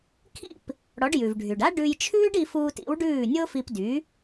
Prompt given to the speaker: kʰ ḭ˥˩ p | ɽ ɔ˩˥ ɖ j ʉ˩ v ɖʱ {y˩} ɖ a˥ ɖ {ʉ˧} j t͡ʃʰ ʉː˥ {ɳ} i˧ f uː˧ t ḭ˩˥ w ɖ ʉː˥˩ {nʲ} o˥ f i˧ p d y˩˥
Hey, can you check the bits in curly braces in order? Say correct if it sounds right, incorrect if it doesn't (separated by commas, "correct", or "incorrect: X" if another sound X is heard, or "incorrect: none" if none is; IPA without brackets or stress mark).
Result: correct, correct, incorrect: ɖ, correct